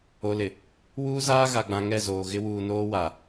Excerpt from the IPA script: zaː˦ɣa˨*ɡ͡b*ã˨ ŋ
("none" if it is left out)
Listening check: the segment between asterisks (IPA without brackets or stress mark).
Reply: ɡ͡b